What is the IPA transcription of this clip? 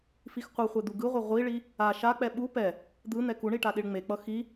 f i x qʷ ɯ χʷ e d̪ u ɡ ɯ ʁʷ ɛ ʁʷ i ɭ i | a ʃ a k͡p ɛ ɓ u p ɛ | d̪ ɯ n̪ ɛ k u ɳ i ʈ a ɗ i ɭ ŋ͡m e k͡p ʌ x i

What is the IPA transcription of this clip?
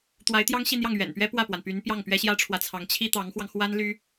t̪ w a˧˥ ɪ̯ t̪ j ɑ˥ ŋ ɕ i˥˧ n̪ j ɑ˥˩ ŋ ɥ ɛ̰˨˩ n p ɥ ɛ˥ p w ä˥˩ p w a˩ n p y˧˥ n p j ɑ˥˩ ŋ p ɥ ɛ˥ ɕ j ä˥ ʈ͡ʂʰ w ä˨ t͡sʰ ɑ˧˥ ŋ t͡ɕʰ i˥ t̪ ɑ˧˥ ŋ x w ɑ˧ ŋ x w a˥ n l y˥

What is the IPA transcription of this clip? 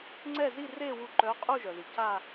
ŋ͡ǀ ɛ˥˨ z i˥˨ r e˥˨ w u˥˨ ǃ œ˧˥˧ qʼ u˥˨ ʒ œ˩ ð i˩ c a˥˨

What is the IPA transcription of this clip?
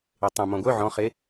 e tˤ œ̃ m ɔ̃ ɡʷ œ ʕ ɔ̃ χ e

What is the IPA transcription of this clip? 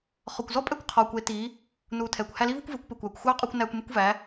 χ ɔ˨ kʷ z ɔ˦ pʼ ɛ˦ kʷ qʰ ɔː˨ kʷ e˨˦ t i˨˦ | n uː˨ tʰ ɛː˨ kʷ h æ˧ l i˦ v u˦ kʷ v e˨˦ kʷ p e˨ kʷ æː˨ kʷ xʷ ɑː˦ qʼ uː˧ kʷ n æː˧ kʷ m e˦ kʷ v æ˨˦

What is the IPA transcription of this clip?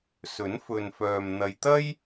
s ɵ˨˥ n f ɵ˨ n f œː˨ m n̪ ɐ˨ j t̪ ɐ˥ j

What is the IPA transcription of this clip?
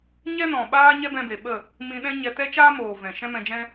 ɲ ɛ˦ n ɔ̃˨ ɓ aː˦ ɲ ɛ˦ b ɛ̃˧ b e˨ ɓ ə˦˨ | m ĩ˧ ɗ ɛ̃˦ ɲ ɛ˧ t ɛ˦ t͡ʃ aː˦ m oː˨ v ɛ̃˨ ʃ ɛ̃˦ m ɛ̃˧ d͡ʒ ɛ̃˦

